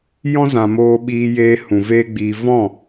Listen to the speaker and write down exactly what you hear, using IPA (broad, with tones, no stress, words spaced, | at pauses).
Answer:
jɔ̃˦zã˨moː˧ ɓiː˧jeː˧ hũ˨veː˦ɡ͡biː˧ vɔ̃˦˨